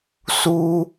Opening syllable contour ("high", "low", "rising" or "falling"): high